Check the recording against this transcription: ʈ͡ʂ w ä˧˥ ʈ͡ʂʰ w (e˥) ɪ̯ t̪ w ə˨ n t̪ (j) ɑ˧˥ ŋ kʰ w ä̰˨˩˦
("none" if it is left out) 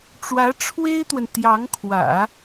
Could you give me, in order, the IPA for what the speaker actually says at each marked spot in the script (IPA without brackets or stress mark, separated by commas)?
e˥, j